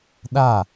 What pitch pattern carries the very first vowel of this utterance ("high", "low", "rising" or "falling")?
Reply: falling